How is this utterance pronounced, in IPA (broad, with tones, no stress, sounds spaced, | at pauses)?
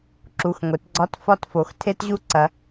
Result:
ǁ u˩˧˩ x ŋʷ e˩˧ t ɡ͡ǀ ɒ˧˥˧ t f ɒ˦˨ t f o˩˧ x tʰ e˦˥ t ʑ u˦˥ ǀ ɐ˩˧